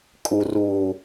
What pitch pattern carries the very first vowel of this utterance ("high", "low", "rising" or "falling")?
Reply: low